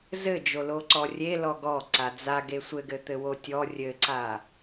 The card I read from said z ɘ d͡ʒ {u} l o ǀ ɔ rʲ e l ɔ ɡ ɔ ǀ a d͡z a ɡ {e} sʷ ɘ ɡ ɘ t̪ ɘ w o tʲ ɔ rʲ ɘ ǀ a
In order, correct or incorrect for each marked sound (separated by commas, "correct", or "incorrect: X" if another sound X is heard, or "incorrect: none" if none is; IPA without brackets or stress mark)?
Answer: incorrect: o, correct